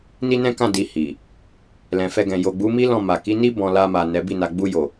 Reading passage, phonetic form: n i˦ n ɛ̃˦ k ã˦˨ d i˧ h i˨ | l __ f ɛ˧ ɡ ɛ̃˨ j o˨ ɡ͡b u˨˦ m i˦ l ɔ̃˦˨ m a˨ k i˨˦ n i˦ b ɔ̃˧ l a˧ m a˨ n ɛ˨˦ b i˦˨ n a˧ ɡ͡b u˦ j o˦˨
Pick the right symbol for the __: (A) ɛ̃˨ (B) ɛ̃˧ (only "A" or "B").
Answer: A